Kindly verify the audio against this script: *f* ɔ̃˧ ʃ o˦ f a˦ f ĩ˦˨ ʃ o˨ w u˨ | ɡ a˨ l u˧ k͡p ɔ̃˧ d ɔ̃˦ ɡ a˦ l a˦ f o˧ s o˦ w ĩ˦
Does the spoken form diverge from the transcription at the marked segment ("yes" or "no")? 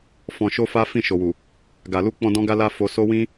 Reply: no